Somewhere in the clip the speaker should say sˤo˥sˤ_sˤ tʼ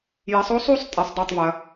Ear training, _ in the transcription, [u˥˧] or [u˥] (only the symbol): u˥˧